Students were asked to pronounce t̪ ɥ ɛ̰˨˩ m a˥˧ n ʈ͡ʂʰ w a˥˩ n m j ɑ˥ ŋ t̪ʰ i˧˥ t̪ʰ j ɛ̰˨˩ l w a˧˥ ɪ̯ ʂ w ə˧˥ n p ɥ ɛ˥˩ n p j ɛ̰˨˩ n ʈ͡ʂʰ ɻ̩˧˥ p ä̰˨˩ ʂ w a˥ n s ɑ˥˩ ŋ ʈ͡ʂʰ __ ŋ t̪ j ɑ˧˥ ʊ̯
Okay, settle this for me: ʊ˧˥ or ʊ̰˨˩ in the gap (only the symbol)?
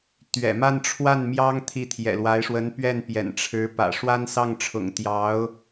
ʊ̰˨˩